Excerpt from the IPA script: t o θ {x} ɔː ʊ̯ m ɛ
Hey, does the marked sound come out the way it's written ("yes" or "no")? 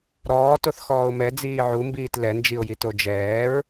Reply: yes